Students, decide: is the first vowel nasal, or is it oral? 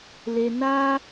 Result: oral